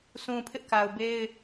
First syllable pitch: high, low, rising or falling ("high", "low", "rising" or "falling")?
low